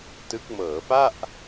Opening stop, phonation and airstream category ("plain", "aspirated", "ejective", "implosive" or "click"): plain